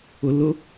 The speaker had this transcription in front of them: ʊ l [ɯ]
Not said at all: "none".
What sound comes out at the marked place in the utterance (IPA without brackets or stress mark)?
ʊ